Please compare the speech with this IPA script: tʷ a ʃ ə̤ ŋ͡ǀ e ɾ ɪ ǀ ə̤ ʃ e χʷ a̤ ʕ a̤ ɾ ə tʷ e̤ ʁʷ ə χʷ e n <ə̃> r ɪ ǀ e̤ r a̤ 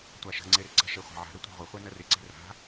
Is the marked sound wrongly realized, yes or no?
yes